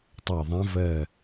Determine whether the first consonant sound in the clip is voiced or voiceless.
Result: voiceless